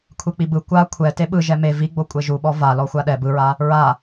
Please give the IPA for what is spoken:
kʷʰek͡pibɯ kʷa kʷʰɛ teɓɯ ʒɛme viɡ͡bo kʷʼeʒuɓɔ va lɔxʷaɗɛ bɯɹa | ɹa

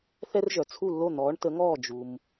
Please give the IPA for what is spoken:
θɛ˧r ʒœ˩ t͡sʰu˧˩lːo˧˩ n̪ɔː˩˧ɳtə˩˧ŋɔː˧˩ d͡ʒu˩m

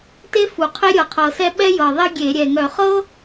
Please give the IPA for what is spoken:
te˥fu˨˩ qʰe˥ɾʲɤ˨˩qʰɤ˨˩sɛ˥ ɓɛ˥jɤ˨˩ðˤe˥ ɡʲe˧˩˧ ɾʲɛ˨˩ŋœ˧˩˧ χɤ˥

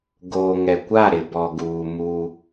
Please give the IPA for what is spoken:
ɡoː˨ŋɛ˨kʷa˦˨ ɾɪ˨bɔ˨ɡuː˨ mu˦

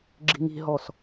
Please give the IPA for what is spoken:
ɡ͡ǁi̤ŋi̤ɦɔs

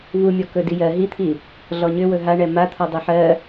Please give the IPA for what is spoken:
vumʲɔ kɵdijɜ ɦit̪ʰi | ɮɔɲʏ wɵɦaɳɛ mat̪ʰɔ dˤɵħɜ

